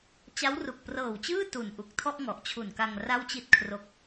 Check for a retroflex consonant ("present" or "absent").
absent